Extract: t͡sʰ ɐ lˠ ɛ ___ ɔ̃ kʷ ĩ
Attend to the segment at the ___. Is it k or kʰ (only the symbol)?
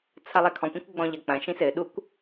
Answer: kʰ